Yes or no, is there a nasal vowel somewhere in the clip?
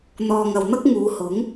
no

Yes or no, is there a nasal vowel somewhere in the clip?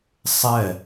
no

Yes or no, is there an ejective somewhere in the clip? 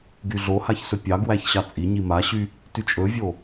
yes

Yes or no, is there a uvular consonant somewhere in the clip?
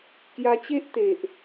no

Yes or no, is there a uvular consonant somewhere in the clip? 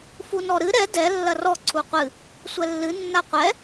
yes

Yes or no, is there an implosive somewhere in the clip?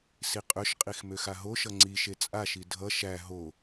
no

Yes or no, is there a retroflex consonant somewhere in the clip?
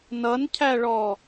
yes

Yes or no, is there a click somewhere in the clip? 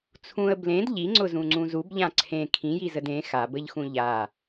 yes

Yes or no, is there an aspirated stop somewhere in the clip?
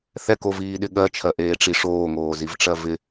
yes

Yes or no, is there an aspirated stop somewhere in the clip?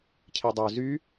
yes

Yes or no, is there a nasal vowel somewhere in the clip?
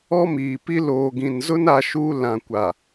yes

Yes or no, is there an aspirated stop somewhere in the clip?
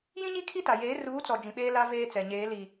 yes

